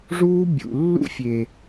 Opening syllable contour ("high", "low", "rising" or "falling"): high